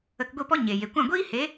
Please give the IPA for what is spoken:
ə˧ k ɡʷ i˦˨ p ɔ˦ ɲ e˨ j e˨ kʷ ã˦˨ ɡʷ iː˦ h e˨˦

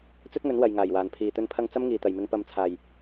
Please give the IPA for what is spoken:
t͡s ɵ˥ t̚ ŋ ɵ˨˥ n w ɐ˨ j ŋ aː˨˩ j w aː˨˩ n pʰ iː˨˩ t̪ ɵ˧ n pʰ ɐ˧ ŋ t͡s ɐ˥ m ŋ iː˨˩ t̪ ɐ˨˩ j m ɪ˨˧ ŋ p ɐ˨˧ m t͡sʰ aː˨˩ j

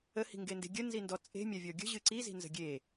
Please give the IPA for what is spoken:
ə h i̤ ŋ ɡ e n d e̤ ɡʲ ə n z i n d ɔ t͡sʼ e̤ mʲ a vʲ ɔ ɡʲ ə̤ ʑ ɨ ǀ i z i̤ n z ə̤ ɡʲ e

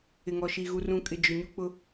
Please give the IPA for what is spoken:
ɪ˨ ŋ ɔ˨ ʃ i˨ ɣ u˨ r ũ˨ kʼ ɪ˨ d͡ʒ ʊ˨ ɲ u˦ k͡p ʊ˦

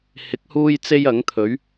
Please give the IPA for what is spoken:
h ɪ˨˥ k̚ h uː˥ j t͡s e˥ j ɐ˨˥ ŋ t̪ʰ ɵ˨˥ ɥ

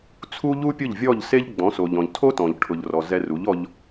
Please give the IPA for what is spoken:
t͡sʰ u˦ ʎ u˦ pʲ ʊ˦˨ ʎ vʲ ɔ˦˨ ʎ s e˦ ʎ ɡ͡b ɔ̃˨˦ s o˨ ʎ ɔ̃˨ ʎ tʰ o˦ t ɔ̃˨ ʎ ʈʰ ʊ˨ ʎ r ɔ˨ z ɛ˧ r u˨˦ ʎ ɔ˧ ʎ

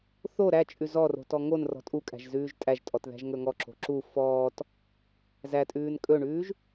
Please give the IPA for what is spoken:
θ o ɾ æ t͡ʃʼ ʉ z ɔ r o̤ t ɔ ŋ o n r ɔ̤ tʼ u kʼ æ̤ ʒ z ʉː ʒ tʼ æ ʒ tʼ ɔ t ð æ̤ ʒ ŋ ɵ ŋ ɔ ǁ o̤ ǁ u f ɔː t | z æ tʼ ʉː n kʼ ɵ ɳ ʉː ʒ

